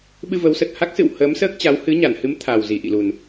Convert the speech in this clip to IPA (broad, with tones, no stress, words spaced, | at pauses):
ɓɨ˧və˨˦wsə˨˩t̚ ha˦˥k̚sɨ̰˧˨w həː˨˦msəː˦˥k̚t͡ɕa˨˦w hɨ˨˦ɲa˧˩nhɨ˨˦m t̪ʰa˨˩wzi˧˩ʔḭ˧˨lu˨˩n